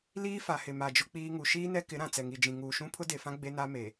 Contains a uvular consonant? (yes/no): no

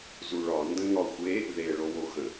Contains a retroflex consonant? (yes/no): yes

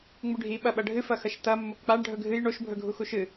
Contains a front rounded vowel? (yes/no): no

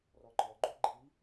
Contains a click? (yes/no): yes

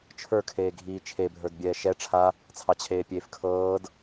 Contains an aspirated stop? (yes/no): yes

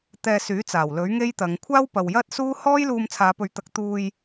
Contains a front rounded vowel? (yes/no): yes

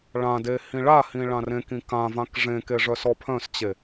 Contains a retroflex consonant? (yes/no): yes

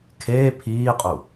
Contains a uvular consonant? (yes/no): yes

